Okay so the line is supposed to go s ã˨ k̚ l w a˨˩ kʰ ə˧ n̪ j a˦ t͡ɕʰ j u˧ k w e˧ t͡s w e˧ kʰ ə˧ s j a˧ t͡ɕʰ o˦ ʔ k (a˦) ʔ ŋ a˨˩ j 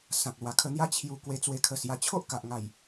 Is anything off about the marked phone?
yes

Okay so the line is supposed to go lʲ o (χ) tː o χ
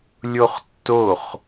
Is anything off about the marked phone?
no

